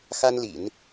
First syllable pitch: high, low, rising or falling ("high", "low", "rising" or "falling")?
high